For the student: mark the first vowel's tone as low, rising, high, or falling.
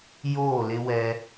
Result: falling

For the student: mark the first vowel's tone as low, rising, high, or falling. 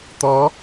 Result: rising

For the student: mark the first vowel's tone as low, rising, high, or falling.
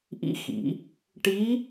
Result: rising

